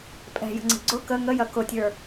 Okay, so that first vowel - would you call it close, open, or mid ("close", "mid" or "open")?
mid